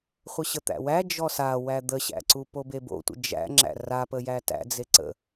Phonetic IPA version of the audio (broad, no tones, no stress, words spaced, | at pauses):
χʷəɕət̪æ̰wæ d͡ʒɔsa wæd̪əɕæ̰ǀu pobebo̰tʷə̰ d͡ʒæ̰ŋ͡ǁæ̰ rapəjæ tæ̰d͡ze ǀə̰